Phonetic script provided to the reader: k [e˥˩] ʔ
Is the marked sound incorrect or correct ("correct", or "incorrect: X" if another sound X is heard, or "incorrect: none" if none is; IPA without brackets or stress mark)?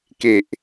incorrect: e˨˩